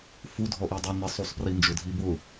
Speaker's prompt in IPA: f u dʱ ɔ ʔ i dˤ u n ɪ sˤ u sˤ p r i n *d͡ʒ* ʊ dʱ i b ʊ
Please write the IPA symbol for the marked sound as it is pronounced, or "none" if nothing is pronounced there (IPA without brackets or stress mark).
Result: d͡ʒ